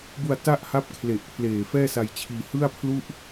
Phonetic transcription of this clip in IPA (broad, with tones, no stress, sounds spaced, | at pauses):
b u˧ a̯ t a˥˩ ʔ h a˦˥ p̚ kʰ l e˨˩ ʔ pʰ l eː˨˩ f ɛː˥˩ s a˧ j t͡ɕʰ iː˧ h ɯ˥˩ a̯ pʰ l u˥˩ ʔ